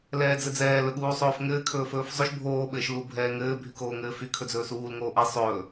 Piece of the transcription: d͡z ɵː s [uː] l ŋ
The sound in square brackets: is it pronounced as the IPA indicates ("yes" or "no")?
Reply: yes